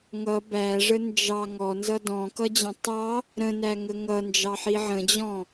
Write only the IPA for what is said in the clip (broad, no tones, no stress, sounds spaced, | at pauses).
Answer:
ŋ ʌ b æ ʐ ə n d͡ʒ ɑ ŋ ɔ n z ʌ d ɔ̃ k ʌ d͡ʑ ə̃ tˤ ɑ | ɾ ə̃ n æ ŋ ə ŋ ʌ n d͡ʒ ɑ ħ i ʕ ə̃ d͡ʑ ɔ̃